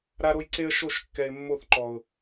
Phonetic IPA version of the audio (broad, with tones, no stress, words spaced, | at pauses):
ɾa˦ɾo˦jǀe˦ə̯ ʃo˦˨ʃ kːɛ˧ɪ̯mːo˦˨θǃɔ˨ʊ̯